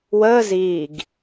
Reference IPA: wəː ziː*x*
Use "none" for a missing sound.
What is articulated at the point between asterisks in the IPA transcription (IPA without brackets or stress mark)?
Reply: ɡ